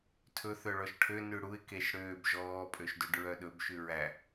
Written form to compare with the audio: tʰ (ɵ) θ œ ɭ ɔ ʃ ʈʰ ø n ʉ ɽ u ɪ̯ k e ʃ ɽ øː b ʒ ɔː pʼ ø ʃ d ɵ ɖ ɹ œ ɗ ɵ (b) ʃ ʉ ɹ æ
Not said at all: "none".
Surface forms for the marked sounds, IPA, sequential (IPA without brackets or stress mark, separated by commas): ɵ, b